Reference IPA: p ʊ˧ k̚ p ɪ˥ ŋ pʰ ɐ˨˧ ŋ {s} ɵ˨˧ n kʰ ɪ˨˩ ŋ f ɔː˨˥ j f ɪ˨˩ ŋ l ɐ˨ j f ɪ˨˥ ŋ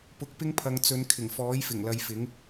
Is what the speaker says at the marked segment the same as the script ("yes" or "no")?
no